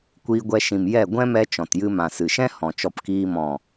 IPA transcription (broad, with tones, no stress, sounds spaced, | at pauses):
kʷ iː˧ ɡʷ ɛ˧ ʃ ĩ˨ m j ɛ˦˨ ɡʷ ɛ̃˦ m ɛ˧ t͡ʃ ɔ̃˨ t j ɨ˧ m ã˨ s ɨ˨ ʃ ɛ̃˦ h ɔ̃˨ t͡ʃ ɔ˧ p k iː˧ m ɔ̃˨